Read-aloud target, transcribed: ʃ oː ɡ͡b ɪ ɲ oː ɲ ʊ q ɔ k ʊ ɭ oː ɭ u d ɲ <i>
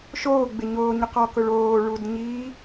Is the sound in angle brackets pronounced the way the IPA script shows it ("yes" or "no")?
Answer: no